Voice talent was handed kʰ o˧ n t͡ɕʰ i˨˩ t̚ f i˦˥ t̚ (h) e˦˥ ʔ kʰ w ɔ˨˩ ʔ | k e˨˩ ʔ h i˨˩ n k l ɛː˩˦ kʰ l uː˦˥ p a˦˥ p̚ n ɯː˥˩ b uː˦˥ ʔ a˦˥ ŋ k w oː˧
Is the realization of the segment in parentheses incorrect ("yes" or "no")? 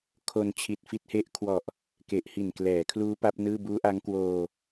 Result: no